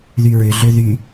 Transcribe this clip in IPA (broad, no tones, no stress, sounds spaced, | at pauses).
ð y ɹ ʏ ɮ ø ð y